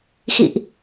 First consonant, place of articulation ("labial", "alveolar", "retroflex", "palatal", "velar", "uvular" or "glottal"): velar